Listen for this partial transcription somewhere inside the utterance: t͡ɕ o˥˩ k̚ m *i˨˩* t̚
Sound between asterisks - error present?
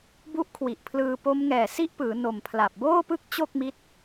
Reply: yes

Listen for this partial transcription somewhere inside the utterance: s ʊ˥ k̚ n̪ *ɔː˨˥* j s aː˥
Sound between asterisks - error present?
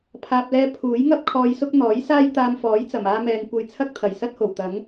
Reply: no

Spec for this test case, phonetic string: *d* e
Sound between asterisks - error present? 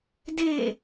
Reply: no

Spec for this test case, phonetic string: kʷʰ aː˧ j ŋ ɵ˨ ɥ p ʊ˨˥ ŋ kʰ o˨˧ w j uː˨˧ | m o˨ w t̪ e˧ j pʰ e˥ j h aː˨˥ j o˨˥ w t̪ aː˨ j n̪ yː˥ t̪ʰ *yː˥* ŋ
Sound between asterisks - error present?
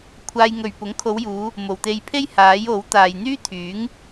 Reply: yes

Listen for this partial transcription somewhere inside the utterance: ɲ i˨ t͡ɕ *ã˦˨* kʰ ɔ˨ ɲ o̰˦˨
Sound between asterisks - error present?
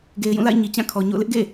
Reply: no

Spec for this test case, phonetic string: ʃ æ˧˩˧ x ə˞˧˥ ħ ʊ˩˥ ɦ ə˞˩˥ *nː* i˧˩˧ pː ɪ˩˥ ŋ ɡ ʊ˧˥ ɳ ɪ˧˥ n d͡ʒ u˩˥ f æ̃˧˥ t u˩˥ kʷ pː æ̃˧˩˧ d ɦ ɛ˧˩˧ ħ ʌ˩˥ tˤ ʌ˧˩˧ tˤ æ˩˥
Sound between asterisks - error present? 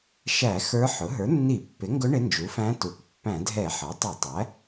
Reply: no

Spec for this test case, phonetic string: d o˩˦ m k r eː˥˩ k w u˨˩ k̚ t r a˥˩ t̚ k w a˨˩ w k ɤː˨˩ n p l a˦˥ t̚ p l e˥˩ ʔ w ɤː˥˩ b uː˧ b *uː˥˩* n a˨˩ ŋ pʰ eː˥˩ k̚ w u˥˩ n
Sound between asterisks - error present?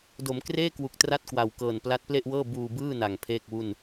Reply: yes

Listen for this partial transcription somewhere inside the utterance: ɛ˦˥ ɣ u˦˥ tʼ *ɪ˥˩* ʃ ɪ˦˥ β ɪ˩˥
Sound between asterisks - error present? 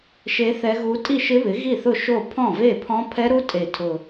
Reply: yes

